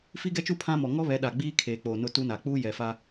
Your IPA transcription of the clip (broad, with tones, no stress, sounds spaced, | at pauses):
f i˦ ɡ ɛ˦ t͡ʃ u˦ pʰ ã˦ m ɔ˨ ŋ ɔ˦ β ɛ˨˦ ɗ a˨ ɡ͡b iː˦ kʰ eː˨ k͡p oː˨ n ʊ˦ t u˦ n a˨ k͡p uː˦ j ɛ˨ f a˦